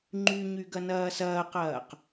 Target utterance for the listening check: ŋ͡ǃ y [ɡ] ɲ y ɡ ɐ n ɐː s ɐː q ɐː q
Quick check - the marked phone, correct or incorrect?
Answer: incorrect